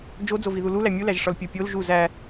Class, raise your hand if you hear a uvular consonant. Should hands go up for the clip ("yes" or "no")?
no